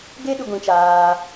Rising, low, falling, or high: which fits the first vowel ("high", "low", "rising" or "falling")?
high